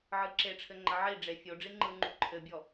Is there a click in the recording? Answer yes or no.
yes